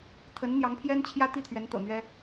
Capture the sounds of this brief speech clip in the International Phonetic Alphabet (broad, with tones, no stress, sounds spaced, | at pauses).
t̪ʰ ə˧˥ n n̪ j ɑ˧˥ ŋ pʰ j ɛ˥ n t͡ɕʰ j ä˥ t̪ i˥˩ t̪ʰ ɥ ɛ˧˥ n t̪ ɤ̰˨˩ n̪ ɥ ɛ˥